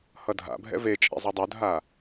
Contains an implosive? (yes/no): no